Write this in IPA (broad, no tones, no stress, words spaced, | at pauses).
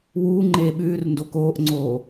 wuː ŋ͡ǃeːɓʉːrndo koːʔŋ͡ǀoː